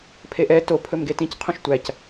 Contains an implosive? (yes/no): no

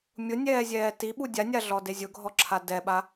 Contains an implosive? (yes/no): yes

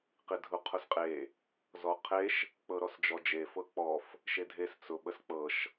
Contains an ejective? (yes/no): yes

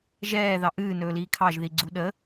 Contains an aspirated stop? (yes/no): yes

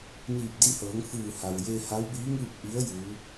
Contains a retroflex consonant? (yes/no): no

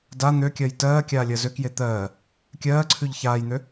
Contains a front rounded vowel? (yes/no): yes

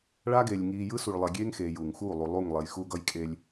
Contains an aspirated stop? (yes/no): no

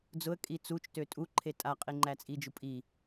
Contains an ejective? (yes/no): yes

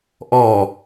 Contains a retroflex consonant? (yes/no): no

